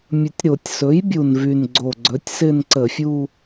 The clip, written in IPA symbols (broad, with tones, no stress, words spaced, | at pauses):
mʲɵ˨˩tʲɾo˧˩˧tʲ sɵ˩˥j bʲu˨˩nvy˨˩nɡ͡ǀo˨˩ɡ͡ǀɵ˩˥tʲ sɪ˥˧nǀə˧˩˧fʲu˥˧